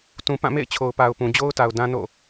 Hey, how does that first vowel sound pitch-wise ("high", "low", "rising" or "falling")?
low